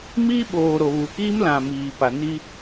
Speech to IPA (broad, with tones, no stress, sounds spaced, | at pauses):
m iː˦ ɓ oː˨ ɾ o˨ β u˨ k iː˦ m l ã˨ m iː˨ p a˨ n i˦